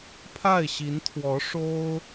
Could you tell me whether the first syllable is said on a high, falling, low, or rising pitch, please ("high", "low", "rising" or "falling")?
falling